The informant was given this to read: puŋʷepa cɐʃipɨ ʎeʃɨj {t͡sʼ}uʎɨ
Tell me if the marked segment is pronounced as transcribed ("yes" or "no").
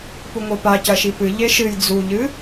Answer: no